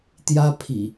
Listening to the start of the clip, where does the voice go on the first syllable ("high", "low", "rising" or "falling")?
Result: high